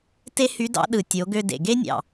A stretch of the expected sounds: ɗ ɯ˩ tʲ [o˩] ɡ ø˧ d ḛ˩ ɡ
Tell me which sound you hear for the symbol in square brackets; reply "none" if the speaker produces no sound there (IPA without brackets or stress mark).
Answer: o˩˧